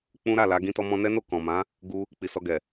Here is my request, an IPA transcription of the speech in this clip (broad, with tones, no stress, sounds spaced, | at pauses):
k͡p ũ˦ ɾ a˦˨ l a˨˦ ɡ ĩ˦ t ɔ˦ m ɔ̃˧ n ɛ˦ n o˦˨ k ɔ̃˨ m ã˨˦ | ɡ u˦ | k͡p i˨ s ɔ˧ ɡ ɛ˨